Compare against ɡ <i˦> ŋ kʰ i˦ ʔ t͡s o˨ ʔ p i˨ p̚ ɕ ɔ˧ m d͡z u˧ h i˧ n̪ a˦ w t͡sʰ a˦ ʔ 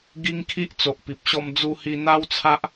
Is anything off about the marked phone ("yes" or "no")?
no